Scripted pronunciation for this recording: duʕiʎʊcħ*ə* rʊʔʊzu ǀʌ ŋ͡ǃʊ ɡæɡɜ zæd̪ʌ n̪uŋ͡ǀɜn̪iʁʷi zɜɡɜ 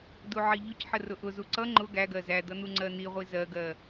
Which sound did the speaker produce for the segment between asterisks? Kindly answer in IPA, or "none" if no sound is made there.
ə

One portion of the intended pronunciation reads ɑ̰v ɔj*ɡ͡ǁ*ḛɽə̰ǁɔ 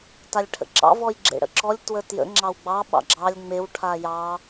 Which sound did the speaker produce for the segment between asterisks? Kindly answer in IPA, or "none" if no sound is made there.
ɡ͡ǁ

